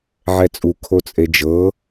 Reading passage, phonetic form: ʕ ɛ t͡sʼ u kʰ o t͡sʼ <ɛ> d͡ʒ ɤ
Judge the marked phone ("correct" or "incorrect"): incorrect